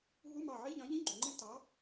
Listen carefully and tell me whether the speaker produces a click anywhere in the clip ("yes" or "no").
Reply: yes